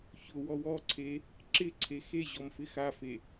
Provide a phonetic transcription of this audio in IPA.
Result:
çʊwɔw ɔǀʰe | ǁɪǀʰe xeʑɔm fɪxafe

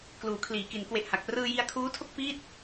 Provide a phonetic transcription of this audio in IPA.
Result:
kluː˩˦kʰliː˩˦ki˩˦n kwe˨˩ʔha˨˩k̚ prɯː˧ji˧a̯kʰuː˦˥tʰo˥˩k̚ fiː˥˩t̚

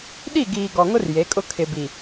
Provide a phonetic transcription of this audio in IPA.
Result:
ɗi˦˨ ɡiː˨ɡɔ˨ŋʊ˦r je˨˦kʼʊ˦ kʰɪ˨bi˨

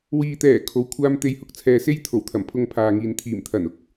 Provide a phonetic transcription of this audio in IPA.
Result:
wiː˨t̪ɛː˨˩ kʰo˨˥wkʷʰaː˥m t̪e˧j hʊ˧k̚t͡sʰɛː˨se˥j t̪ʰo˨˩wt̪ʰɐ˨˩mpʰʊ˧ŋ pʰaː˨ŋiː˨n t̪ʰiː˨˩mt̪ʰɐ˨˩n ʊ˨k̚

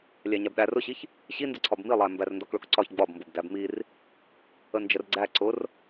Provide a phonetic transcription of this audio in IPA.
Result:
lʲæɲæbɗær ʊɕiç | ɕindəǀʰɒb milˠæ mbærndɒkɭʊkǀɒç ɡ͡bɒbmbʊb dæbmir | ənd͡ʒərɡ͡ǀæ ǀʊr

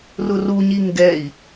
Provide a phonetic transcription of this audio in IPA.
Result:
rʊruɲi ŋɡɛi̯

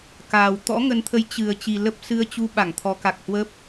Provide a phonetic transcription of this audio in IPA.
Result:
kaː˨˩w t̪ɔ̰˧˥ŋə˨˦nt̪ʰə˨˦j t͡ɕɨ˨˩ə̯ t͡ɕi˨˩lə˦˥p̚sɨ˧ə̯t͡ɕu˧ ɓa˧˩ŋt̪ʰɔ˨˦ka˨˩k̚ hwə˦˥p̚

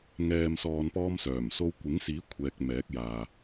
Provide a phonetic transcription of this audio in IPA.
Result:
ŋɛː˨msɔː˨n pɔː˥msœː˨˩mso˥w kʷɪ˨˥ŋsiː˨˥ kʷʰɛː˧k̚mɛː˨˥k̚jaː˨

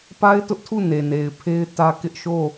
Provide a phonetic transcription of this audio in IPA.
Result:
pa˦ɪ̯tʊ˦ʔtʰu˦˨ ne˨ne˨ɪ̯pʰe˦ɪ̯tä˦ kɪ˦ʔʃo˦˨

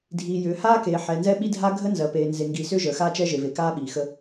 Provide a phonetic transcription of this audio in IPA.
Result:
dʱiː˨jʏː˨haː˦keː˨ ħɛ˨ nzɛ˦ɓi˦dʱa˦ ɡʱəː˦nzɜ˨peː˨ nze˨ŋɡiː˨sʏː˦ ʒəː˨xaː˦t͡ʃɛ˦ ʒe˨ve˨ kaː˦ɓiː˨xə˦

